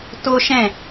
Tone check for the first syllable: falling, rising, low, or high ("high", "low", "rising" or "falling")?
high